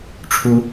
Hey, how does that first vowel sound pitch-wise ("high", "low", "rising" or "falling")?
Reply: rising